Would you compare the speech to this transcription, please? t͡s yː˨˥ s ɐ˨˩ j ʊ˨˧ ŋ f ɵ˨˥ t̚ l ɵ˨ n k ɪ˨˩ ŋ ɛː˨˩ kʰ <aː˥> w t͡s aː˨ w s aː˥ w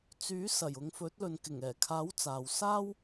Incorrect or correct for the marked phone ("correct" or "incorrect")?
incorrect